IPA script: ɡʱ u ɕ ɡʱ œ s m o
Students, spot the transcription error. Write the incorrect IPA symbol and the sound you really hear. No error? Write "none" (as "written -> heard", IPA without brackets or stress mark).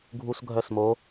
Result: ɕ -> s